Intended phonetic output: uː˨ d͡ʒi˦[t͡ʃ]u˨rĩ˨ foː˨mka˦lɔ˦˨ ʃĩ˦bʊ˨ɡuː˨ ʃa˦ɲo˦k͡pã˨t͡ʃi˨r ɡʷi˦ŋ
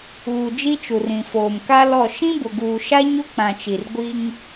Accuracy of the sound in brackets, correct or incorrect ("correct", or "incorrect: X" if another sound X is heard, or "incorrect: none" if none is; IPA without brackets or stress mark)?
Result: correct